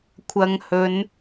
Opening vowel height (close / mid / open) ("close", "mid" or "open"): open